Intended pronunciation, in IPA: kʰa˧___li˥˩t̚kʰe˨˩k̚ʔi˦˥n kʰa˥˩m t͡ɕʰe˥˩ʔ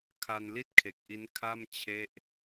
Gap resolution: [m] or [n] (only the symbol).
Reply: n